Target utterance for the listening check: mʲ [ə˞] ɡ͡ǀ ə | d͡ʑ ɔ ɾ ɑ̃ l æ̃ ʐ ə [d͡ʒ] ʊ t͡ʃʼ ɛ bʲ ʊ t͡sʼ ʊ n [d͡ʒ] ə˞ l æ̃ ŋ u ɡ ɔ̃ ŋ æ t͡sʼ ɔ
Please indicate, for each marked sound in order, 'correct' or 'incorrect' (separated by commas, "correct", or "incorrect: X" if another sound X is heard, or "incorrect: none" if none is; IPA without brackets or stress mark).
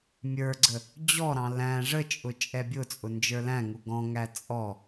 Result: correct, incorrect: t͡ʃʼ, correct